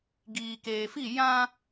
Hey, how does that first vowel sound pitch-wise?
low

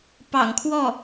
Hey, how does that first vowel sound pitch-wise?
low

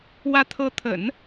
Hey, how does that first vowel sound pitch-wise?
rising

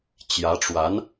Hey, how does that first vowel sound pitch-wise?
rising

